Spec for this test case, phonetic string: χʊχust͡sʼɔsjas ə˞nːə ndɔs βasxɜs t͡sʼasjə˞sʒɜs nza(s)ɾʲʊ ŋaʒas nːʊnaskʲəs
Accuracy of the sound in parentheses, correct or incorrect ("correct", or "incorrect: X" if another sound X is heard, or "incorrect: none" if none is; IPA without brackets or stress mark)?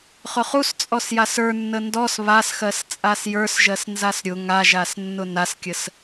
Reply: correct